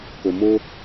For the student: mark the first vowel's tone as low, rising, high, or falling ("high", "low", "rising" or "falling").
low